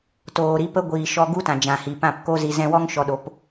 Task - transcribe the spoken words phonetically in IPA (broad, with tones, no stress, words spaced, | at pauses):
toː˨ɾi˨˦pə˦ɡʷiː˨ ʃɔ˧ɡu˦ tã˨d͡ʒã˨hi˨pã˦˨p ko˦ zi˨zɛ̃˧wɔ˦ŋ ʃɔ˧ɗo˨˦p